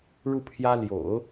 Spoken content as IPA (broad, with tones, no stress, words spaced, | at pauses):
ɻu˥˩pʰjä˥ ljo̰˨˩˦ʊ̯